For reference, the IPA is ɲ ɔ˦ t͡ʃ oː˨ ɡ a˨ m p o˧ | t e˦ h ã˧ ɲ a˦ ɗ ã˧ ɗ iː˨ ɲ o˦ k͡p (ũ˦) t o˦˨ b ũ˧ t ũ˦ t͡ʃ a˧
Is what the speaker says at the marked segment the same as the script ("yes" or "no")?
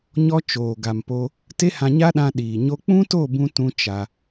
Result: yes